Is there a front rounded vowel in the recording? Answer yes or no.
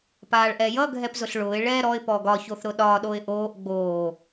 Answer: no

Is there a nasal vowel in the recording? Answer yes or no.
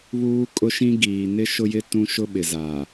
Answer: yes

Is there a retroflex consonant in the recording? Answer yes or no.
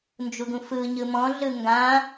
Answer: no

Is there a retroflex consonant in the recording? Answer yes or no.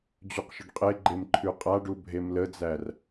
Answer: yes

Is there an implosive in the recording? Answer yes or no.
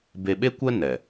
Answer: yes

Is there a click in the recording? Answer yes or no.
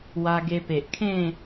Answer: no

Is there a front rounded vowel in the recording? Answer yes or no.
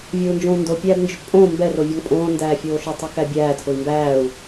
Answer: yes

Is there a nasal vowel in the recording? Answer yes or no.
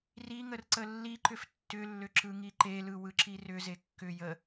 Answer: no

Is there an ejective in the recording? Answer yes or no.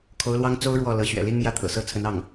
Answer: no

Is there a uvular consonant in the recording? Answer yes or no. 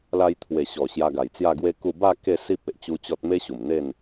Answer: no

